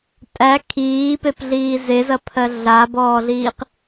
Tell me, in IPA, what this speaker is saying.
tʼ æ kʰ iː p e p ɮ iː z e z ɐ pʰ ɜ ɮ a b ɔː ɮ iː q

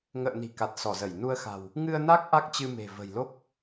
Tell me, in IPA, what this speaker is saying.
ŋ ə̰ː˧˨ n i̤˨˩ k a˨˩ t̚ s ɔ˧˩ z ə˧˩ j n u˧ ə̯ x a̤˨˩ w | ŋ ɨ˧ ə̯ n a˦˥ k̚ ʔ a˦˥ k̚ t͡ɕ ɨ˧ m e̤˨˩ v ə̤˨˩ j l o˦˥ k̚

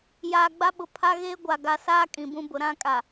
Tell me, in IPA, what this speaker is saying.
j aː˨ ɡ͡b a˦ ɓ ʊ˨ pʰ a˦ ɣ eː˦ ɡʷ a˨ ɡ a˨ s aː˦ kʼ ĩ˨ b ũ˦ b ʊ˨ ɾ ã˦ kʼ a˨

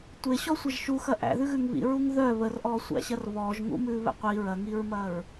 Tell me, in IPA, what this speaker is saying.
tʷ e ɕ ɔ sʷ ɐ ʒ ʃ u x ɐ ʔ æ̰ ð ʉ ɣ ʉ ŋ β ḭ ɹ u ŋ ð œ β ə r ʔ ɔː sʷ æ̰ ɕ ɐ r β ɔː ʒ ŋ ṵ m ʉː β ɛ̰ qʷ i ɹ ɐ ŋ i ɹ m ɐ ɹ

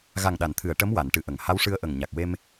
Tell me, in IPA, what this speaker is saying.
ɣ a˨˩ ŋ ɗ a˨˩˨ n t̪ʰ ɨ˨˩˨ ə̯ ʈ ə˧˥ m w a˨˩˨ n ʈ ɨ˨˩ ʔ ə˨˩˨ ŋ h a˧˥ w ʂ ɨ˧ ə̯ ʔ ə˨˩ ŋ ɲ a˨˩ k̚ w e˧ m

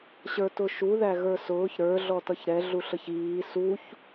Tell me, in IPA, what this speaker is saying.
ɕ ə˞ t ʊ ʃ u ð æ ɣ ə˞ s ʊː ç ɾ ə˞ ɮ ɔ t ʌ ç ɾ ɛ ɮ u ɬ ə ç iː s u ç

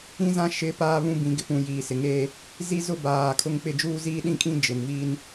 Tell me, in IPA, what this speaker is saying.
ĩ˦ z ã˦ ʃ ɪ˨˦ p aː˦ β ũ˦ b ĩ˨˦ ɡ ɪ˨ p ũ˨ j iː˨ s ɪ˨ ŋ eː˦ | z i˦ z ʊ˦ b aː˨ kʰ ʊ˦ ŋ k͡p ɪ˦˨ d͡ʒ uː˦ z iː˦ ɗ ĩ˦ kʼ ĩ˦ d͡ʒ ɪ˨ n v iː˦ n

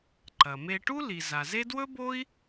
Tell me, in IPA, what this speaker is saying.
ǃ ɐ˩ m e˧ ʈ u˥ l i˩ z a˩ z e˥ d w ɵ˥ b o˥ i̯

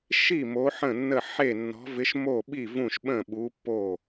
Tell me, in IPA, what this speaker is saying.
ʃ i˥˩ m o˨˥ ħ ə̃˥˩ nː ə˥˩ ħ e˥˩ nː ɔ̤˨˥ v ɪ˨˥ ʃ m o˥˩ ɓ i˥˩ v ũ˥˩ ʃ ɓ ə̃˥˩ ɓ u˨˥ pː o˥˩

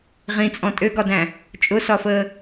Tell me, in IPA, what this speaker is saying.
ʁ ĩ t͡sʼ ɔ̃ tʼ ø ɡ ɒ d æ̃ | t͡ʃʼ ʊ s ɒ f əː

